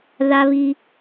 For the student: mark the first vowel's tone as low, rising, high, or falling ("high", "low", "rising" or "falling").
high